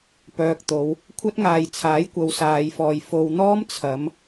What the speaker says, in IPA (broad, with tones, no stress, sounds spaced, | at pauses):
p œː˨ k̚ t̪ o˨˧ w | kʷʰ ɐ˥ t̚ ŋ aː˨ j t͡sʰ aː˨˥ j kʷ ɐ˨˧ w s aː˨˧ j f ɔː˨ j f o˨ w n̪ ɔː˥ m t͡sʰ ɐ˨˥ m